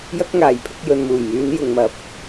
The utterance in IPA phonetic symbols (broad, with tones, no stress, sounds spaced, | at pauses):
j ɐ˥ k̚ ŋ aː˨ j pʰ ɪ˧ k̚ j ɵ˨ n m uː˨˩ j m yː˨˧ n j ʊ˨ ŋ m ɐ˨ p̚